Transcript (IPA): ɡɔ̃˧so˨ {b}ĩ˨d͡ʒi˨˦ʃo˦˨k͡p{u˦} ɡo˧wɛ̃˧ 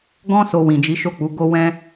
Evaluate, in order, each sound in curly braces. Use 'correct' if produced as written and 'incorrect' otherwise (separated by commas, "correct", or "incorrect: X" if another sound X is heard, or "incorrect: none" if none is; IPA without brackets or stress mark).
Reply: incorrect: w, incorrect: u˨˦